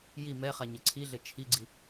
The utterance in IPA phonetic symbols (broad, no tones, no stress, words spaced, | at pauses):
ji mɛχa ɲɘǀʰiɮɘ t͡ʃʰiɡ͡ǀi